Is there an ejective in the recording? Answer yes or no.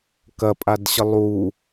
yes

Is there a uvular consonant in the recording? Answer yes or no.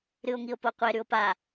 yes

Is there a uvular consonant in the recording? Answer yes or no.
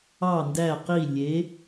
yes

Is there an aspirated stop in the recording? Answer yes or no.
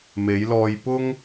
no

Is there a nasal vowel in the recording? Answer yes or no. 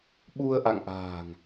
no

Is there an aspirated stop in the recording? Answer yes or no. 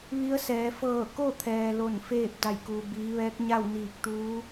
yes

